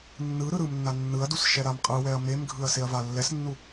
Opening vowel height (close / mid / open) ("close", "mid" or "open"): close